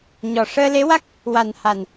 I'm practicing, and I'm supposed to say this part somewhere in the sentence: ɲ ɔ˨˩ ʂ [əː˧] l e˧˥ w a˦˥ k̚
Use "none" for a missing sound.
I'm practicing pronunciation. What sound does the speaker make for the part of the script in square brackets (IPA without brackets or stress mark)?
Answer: əː˧